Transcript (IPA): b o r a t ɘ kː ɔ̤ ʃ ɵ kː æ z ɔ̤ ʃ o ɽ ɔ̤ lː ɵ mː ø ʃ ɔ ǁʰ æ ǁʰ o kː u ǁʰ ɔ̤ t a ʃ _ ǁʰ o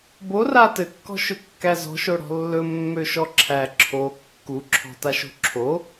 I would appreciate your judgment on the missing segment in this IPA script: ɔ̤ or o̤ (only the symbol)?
o̤